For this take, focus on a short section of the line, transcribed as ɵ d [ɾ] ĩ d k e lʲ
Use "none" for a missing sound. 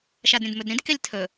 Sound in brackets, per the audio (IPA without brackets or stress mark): ɾ